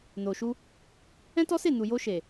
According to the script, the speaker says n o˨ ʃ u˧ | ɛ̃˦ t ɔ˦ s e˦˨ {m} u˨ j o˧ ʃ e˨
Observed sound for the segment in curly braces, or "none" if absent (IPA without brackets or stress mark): n